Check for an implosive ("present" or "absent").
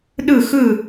present